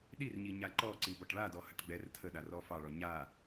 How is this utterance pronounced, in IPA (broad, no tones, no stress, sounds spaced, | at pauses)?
ɗ i r ɲ i ɲ a ǃ ɔ ǀ i b ɔ ʈ ɭ a d ɔ h ə ʈ ɡ͡b ɛ r tʰ ə ɗ a r ɔ f ɑ ɭ ɔ ɲ a